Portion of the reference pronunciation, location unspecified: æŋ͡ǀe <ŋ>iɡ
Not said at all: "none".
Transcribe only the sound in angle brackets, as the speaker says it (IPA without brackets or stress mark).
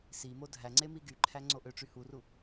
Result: m